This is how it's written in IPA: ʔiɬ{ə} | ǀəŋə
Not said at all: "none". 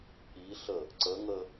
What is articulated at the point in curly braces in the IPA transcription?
ə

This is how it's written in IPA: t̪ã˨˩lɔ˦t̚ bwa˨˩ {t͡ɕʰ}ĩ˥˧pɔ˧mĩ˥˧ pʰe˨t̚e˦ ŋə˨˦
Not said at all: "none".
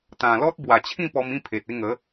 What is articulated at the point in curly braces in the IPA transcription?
t͡ɕʰ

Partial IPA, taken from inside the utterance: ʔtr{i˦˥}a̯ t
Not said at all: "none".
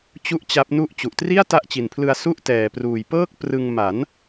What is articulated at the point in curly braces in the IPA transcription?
i˥˩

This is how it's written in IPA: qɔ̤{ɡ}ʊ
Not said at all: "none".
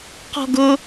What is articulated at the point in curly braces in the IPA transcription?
ɡ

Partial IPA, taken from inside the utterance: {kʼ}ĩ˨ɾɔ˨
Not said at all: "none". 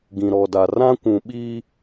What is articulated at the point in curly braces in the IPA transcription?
ɡ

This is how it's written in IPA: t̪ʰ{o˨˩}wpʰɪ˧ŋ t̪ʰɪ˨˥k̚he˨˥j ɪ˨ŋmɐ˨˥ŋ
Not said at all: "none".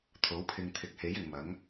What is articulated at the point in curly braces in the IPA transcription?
o˨˥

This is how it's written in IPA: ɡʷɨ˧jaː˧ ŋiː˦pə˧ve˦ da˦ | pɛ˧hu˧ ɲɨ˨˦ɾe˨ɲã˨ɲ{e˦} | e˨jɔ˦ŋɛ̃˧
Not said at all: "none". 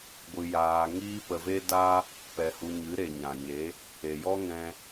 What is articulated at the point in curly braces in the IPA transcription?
e˨˦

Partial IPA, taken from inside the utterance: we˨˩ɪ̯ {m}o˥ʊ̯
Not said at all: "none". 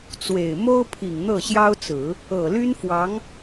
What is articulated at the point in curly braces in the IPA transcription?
m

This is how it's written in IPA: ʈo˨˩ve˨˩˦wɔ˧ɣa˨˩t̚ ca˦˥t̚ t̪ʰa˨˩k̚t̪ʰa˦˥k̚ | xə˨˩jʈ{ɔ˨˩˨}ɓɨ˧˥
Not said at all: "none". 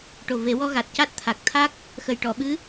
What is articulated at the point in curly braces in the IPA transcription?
ɔ˨˩˨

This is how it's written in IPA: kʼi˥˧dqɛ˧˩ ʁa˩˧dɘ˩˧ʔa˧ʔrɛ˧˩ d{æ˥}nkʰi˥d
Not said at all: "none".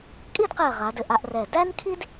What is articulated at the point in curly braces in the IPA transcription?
æ˥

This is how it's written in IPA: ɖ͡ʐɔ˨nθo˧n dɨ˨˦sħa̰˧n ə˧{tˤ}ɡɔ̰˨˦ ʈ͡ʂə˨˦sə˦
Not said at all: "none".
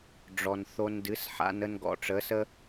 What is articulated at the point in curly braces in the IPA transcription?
n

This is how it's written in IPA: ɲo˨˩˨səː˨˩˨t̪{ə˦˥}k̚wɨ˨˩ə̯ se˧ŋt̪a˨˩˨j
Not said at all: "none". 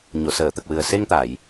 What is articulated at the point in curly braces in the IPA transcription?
ə˨˩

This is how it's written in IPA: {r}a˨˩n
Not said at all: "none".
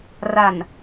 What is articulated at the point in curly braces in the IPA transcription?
r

